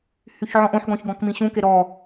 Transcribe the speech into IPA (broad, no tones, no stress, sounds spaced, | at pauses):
h y ç ʕ ɔ̃ ʔ õ ħ ɡ ɔ̃ ç ɡ ɔ̃ k m ĩ ɕ ũ k e ɾ ɔ